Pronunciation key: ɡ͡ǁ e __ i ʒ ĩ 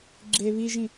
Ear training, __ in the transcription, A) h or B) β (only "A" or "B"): B